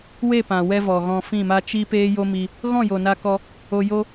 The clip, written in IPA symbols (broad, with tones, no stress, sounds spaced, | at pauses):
w e˦˨ p ã˨ w ɛ˦ v ɔ˨ ɣ ɔ̃˧ f ĩ˦˨ m a˦ t͡ʃ i˦ p eː˦ j o˦ m i˧ | ɣ ɔ̃˦˨ j o˨ n a˧ k ɔ˧ | o˧ j o˦